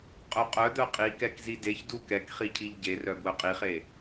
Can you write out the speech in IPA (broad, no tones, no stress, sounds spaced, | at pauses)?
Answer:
qʼ œ qʼ œ d̪ œ qʼ i k ɛ k z i d e ç d u k ɛ k χ i cʰ i ʎ ɟ e r œ b w œ qʼ i χ e